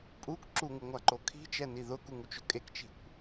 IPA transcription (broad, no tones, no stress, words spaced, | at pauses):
pʼuk ǁuŋuŋʷaǃo kʰi̤t͡ʃɛni ðʊkuŋut͡ʃʊ kʼekt͡ʃi̤kʷ